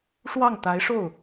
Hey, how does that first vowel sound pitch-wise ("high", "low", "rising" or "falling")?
falling